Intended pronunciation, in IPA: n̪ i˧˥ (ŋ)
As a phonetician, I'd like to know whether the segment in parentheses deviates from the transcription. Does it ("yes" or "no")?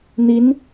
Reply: yes